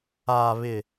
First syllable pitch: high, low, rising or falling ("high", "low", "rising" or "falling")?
low